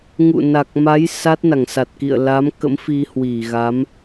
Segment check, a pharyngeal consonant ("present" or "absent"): absent